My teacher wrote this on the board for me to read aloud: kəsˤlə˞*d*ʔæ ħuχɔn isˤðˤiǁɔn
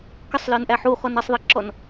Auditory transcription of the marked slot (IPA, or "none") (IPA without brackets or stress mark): n